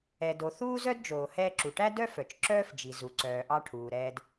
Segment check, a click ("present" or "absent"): present